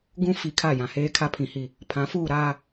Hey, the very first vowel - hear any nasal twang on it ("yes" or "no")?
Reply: yes